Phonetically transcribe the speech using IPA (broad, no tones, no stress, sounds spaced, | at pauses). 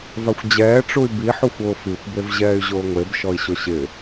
v a xʷ d͡ʑ ɛː ʈ͡ʂ u y̯ b i ħ u xʷ ʊː f i xʷ b e v ʑ ɛː y̯ ʑ ʊː ŋʷ e b ʃ ɔ i̯ ɕ ʊ ɕ ɪ